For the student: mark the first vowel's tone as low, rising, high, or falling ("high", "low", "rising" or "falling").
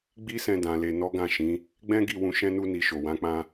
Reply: high